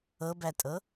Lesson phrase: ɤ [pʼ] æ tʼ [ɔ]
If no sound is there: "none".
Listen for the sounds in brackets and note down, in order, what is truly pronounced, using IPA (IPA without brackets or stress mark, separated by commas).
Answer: b, ɤ